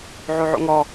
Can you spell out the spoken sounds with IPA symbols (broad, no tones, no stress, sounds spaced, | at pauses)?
ʕ o ʕ o̰ ŋ ɔ